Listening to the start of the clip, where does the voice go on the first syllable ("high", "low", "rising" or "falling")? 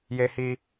high